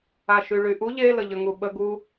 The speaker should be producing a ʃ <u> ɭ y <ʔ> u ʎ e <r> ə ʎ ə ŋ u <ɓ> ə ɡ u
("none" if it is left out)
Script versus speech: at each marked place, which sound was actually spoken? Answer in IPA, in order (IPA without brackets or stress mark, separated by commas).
y, ʔ, l, ɓ